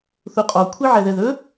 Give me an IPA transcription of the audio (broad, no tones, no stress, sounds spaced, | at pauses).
θ u qʼ ɔ kʷʰ i ʕ ɛ ð ɛ ð ɵ